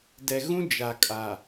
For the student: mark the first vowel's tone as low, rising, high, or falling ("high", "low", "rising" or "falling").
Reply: low